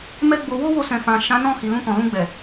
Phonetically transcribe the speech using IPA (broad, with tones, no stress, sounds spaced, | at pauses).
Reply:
m ɛ˦ ɡ͡b o˧ w o˦ w o˧ s ɛ̃˨ f ã˨ ʃ ã˨˦ n ɔ̃˦˨ h i˨ l ũ˧ k ɔ̃˨ l ũ˧ ɡ͡b ɛ˨